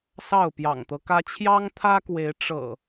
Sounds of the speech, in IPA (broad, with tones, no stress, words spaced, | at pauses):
sɑ˥˨ʊ̯pjɑ̰˨˩ŋt̪ɤ˦kä˦ t͡ɕʰjɑ˦ŋt̪ʰä˦kwe˨˦ɪ̯ ʈ͡ʂɤ̰˨˩